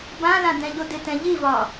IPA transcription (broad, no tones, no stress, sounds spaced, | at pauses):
b ã l ã d ɛ̃ ʎ o d ɪ t ɛ̃ ʎ i v ɒ